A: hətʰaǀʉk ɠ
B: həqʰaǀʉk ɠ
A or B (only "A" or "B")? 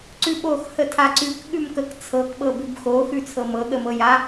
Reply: A